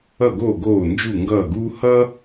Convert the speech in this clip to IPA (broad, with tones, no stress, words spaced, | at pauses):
ʌ˦˨ɡo˦˨ ɡoː˦˨nd͡ʒu˦˨ŋɡʌː˦˨ɡuː˥ hʌː˥